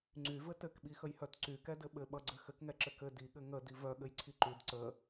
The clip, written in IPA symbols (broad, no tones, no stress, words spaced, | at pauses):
ŋ͡ǀyvɘ tɘkɓixəjhœt ǀykɛdɘ ɓɘɓʌɡ͡ǀɘ xɘkŋɛǁɘ kɘ diɠɘ ŋədi vœɠɘjǀʰi ǃyd ǀə